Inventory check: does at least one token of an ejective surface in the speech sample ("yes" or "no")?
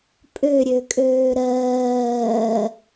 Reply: yes